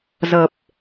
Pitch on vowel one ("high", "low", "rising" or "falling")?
low